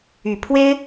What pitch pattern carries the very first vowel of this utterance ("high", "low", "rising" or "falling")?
low